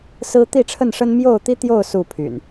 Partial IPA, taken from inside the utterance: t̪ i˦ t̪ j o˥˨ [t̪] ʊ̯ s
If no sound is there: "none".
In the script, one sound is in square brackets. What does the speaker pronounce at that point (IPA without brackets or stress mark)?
none